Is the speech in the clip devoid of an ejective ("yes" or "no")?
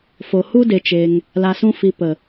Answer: yes